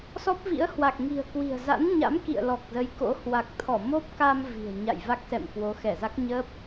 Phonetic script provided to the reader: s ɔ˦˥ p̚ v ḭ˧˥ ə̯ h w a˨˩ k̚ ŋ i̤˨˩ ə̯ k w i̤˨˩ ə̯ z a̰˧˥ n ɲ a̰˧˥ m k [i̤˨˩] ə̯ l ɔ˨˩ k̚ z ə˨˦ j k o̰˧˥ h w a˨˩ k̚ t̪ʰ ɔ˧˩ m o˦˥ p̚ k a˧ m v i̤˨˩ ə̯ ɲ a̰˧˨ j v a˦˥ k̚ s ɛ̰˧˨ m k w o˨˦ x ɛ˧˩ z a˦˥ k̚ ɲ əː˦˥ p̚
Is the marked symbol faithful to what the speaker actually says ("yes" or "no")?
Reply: no